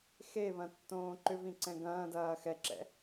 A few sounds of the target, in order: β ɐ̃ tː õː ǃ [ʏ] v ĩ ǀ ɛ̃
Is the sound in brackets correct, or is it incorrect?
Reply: correct